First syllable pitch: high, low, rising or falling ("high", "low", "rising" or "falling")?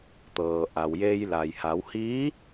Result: low